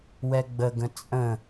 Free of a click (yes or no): yes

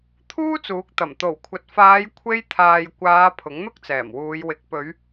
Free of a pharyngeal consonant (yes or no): yes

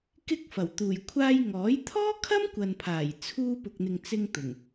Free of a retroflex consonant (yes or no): yes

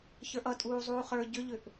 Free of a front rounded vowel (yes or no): no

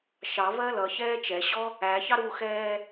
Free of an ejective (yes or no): yes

